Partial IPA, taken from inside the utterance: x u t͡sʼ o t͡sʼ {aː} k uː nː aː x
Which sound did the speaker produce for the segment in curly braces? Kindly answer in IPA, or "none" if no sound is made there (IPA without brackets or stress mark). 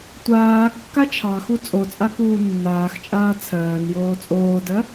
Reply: a